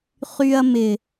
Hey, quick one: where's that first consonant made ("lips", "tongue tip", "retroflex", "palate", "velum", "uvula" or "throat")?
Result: uvula